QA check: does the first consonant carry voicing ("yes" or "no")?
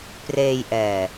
no